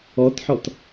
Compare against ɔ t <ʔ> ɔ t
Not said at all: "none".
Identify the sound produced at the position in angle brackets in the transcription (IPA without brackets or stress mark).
ħ